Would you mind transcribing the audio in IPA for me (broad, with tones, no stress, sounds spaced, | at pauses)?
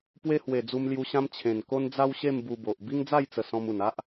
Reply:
p w e˦ h w e˨˩ d͡z u˧ m l j u˧ ɕ ã˦ m t͡ɕʰ ẽ˨˩ n k o˦ n d͡z a˦ w ɕ e˥˧ m b u˧ b o˨ ʔ b i˦ ŋ d͡z a˥˧ j t͡s ə˨˩ s ɔ̃˧ m u˨˩ n a˦ ʔ